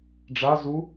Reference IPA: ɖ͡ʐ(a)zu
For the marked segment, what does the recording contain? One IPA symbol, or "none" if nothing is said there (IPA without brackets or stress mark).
a